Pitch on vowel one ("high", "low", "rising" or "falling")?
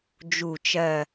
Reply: low